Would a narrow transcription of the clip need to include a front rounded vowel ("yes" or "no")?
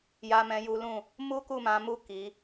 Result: no